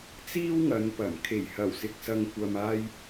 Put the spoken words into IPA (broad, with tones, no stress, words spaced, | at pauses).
t͡siː˥wŋɐ˨˧npɐ˨˩m kʰe˨˩jhɐ˨˩wsɪ˨k̚ sɐ˨ŋkʷɐ˨maː˧j